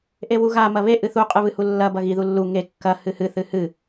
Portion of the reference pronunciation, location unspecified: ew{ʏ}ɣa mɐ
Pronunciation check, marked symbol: incorrect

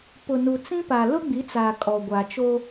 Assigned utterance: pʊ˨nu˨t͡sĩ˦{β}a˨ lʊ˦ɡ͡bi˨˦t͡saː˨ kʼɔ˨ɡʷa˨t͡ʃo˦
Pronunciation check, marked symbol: incorrect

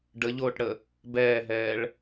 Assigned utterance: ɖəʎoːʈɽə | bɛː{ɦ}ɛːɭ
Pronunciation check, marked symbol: correct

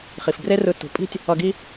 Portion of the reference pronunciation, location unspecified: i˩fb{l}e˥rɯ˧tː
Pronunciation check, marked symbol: incorrect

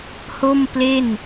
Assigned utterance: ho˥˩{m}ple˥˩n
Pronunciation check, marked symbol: correct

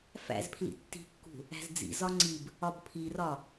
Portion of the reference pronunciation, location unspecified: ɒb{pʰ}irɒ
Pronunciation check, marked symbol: correct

